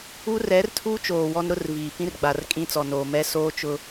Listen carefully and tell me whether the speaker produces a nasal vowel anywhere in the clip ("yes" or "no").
yes